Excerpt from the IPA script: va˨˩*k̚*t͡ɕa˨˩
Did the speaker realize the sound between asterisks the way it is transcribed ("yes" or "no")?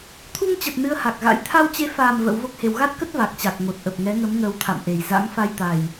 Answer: yes